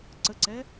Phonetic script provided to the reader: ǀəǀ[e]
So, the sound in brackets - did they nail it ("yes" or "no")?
no